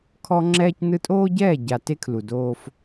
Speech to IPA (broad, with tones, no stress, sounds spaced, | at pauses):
kʰ ɔ˦ ŋ͡ǁ ɛː˦ c n ɯ˦ tʼ oː˦ ɟ ɛː˦˨ ɟ a˨ t e˦ kʰ l u˨ d oː˦ f